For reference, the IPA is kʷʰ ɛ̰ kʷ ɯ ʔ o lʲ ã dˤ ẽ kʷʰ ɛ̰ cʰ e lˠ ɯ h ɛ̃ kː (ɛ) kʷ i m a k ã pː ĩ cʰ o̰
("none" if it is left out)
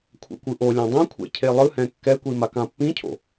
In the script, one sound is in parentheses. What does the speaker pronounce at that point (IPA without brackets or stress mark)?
ɛ